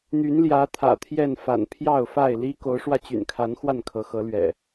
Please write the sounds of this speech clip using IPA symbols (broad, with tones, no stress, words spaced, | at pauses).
n̪y˨˦nljä˨˦ t̪ʰä̰˨˩t̪ʰjɛ˥˨n fa̰˨˩npʰjɑ˥˨ʊ̯fa˥˨ɪ̯ li˦ ko˨˦ʊ̯ʂwä˧t͡ɕy̰˨˩nkʰa˨˦n xwa˥˨nkʰɤ˨˦xɤ˨˦lɥɛ̰˨˩